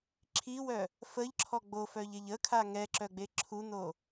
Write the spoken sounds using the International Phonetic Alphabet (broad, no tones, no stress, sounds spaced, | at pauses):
ǁʰ i w œ | f ə ʎ ǁʰ ɔ ɡ͡b o f œ ʎ e ʎ ə kʰ a ŋ ɛ ǁ œ ɡ͡b e ǁʰ u n o